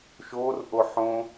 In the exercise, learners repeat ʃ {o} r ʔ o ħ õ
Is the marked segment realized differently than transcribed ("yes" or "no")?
no